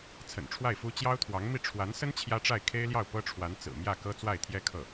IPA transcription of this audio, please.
t͡sʰə̰˨˩nʈ͡ʂʰwa˥˩ɪ̯fu˥ t͡ɕjɑ˥ʊ̯t̪ʰwɑ˧˥ŋmi˥˩ ʈ͡ʂʰwa˧˥nsə˥n t͡ɕʰjä˥ʈ͡ʂa˥˩ɪ̯ kʰe˥ɪ̯ljɑ˥˩ʊ̯ pɤ˥ʈ͡ʂʰwa˧˥n t͡sɹ̩˨˩mjä˥˩kɤ˥ t͡swa˥˩ɪ̯t̪ʰjɛ˥kʰɤ˥˩

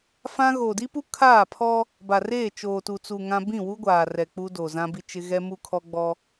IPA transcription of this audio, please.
fã˦ ɣo˨di˦pu˦ kʰaː˦˨pʰɔ˦ | ba˨reː˦˨ t͡ʃoː˨tu˨t͡su˨ ŋã˦ bĩ˦˨wu˦ ɡʷaː˨rɛ˨ k͡pu˦do˨ zã˦bi˦t͡ʃɪ˦ ɣɛ˦mu˦kʰɔ˦ ɡ͡bɔ˦

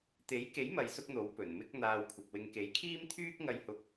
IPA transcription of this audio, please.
t̪e˨˥jke˨˥jmɐ˨j sʊ˥k̚n̪o˨˥w pɵ˨˩nmɪ˥k̚ n̪aː˧wkʷʰɐ˨p̚wɪ˧ŋ ke˨˥jkʰiː˥mt̪ʰyː˥k̚ ŋɐ˧jhʊ˧k̚

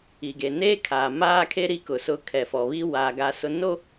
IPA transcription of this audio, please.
i˨ɡe˨ neː˦kʰaː˨maː˦kʰe˦ ɾi˦kʊ˨ sʊ˦ kʰɛ˨fɔ˨βi˦ wa˨ ɡa˦sʊ˦ no˦

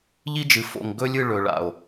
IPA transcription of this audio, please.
ʎi˦d͡ʒɨ˨fo̰˨ŋ ɡɵ˦lʲɨ˦˨ ɭɵ˨ ɭa̰˨o̯

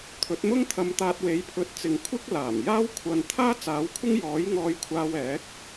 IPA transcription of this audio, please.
t̪ʰɵ˨˥t̚mʊ˥ŋt̪ʰɐ˧m t̪aː˧t̚we˨˥jpʰɵ˨˥t̚t͡sɪ˨ŋ kʷʰɪ˥k̚laː˨˩mjaː˥wkʷʰɐ˧n t̪ʰaː˥ t͡saː˨˥wkʷʰɪ˥ŋ jɔː˨˥j ŋɔː˧jkʷʰaː˧wɛː˨˥k̚

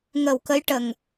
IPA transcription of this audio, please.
ŋə˨˩w kə˧˥jʈə˨˩ŋ

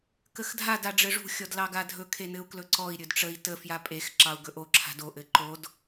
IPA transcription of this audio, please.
kəxdʱad aɖ͡ʐɘʐṳ xʲɔdlɑɡadʱɵ kʰenɘu̯klɵǀɔi̯ ɾʲɵdʈ͡ʂəi̯ tə fjapʼex ǁɑu̯ɡɵʔo ǁʰa̤do ʔɘǃod

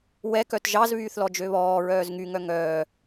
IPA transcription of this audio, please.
wɛ kœtʒɑz βyːθlɔd͡ʒøβɔː ɹœːzŋy ŋœŋœː

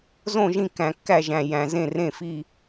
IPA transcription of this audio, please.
zõ˥˧ʒĩ˥˧ kæ̃˧kːæ˥˧ʒæ̃˧ jæ̃˧zẽ˥˧ rẽ˥˧fi˥˧

